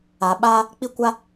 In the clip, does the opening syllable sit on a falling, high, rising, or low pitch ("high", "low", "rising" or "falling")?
low